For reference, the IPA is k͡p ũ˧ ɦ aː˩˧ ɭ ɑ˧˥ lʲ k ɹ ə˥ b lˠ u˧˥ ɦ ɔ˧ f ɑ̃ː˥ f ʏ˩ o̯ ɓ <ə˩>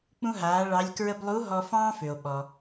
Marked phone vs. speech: incorrect: ɔ˩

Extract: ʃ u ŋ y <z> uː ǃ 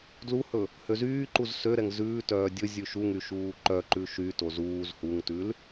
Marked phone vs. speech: incorrect: ʃ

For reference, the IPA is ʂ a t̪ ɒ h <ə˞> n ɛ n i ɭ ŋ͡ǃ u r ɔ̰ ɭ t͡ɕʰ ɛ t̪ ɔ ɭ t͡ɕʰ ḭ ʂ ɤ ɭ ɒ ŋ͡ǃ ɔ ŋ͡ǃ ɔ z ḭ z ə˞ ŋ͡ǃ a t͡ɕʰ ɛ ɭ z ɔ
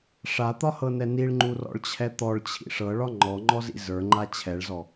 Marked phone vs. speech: incorrect: ɤ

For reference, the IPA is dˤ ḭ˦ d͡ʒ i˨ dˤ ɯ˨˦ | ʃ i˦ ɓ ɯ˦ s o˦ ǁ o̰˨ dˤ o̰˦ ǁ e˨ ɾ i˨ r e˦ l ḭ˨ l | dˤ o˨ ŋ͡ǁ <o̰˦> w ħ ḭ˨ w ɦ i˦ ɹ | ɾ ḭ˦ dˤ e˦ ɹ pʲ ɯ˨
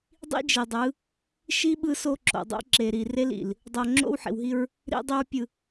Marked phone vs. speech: correct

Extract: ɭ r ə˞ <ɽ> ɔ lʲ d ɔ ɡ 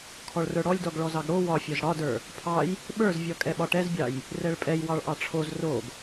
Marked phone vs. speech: correct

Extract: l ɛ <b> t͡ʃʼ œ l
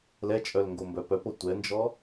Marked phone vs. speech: incorrect: none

